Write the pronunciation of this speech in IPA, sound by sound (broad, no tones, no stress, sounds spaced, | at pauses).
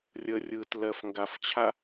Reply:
rʲ ə rʲ ɯ t l ɜ f ŋ ɡ a f t͡ɕʰ a